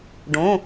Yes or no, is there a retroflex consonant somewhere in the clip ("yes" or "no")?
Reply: yes